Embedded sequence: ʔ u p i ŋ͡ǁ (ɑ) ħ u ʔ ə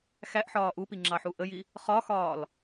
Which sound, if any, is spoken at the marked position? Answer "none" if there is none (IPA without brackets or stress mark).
ɑ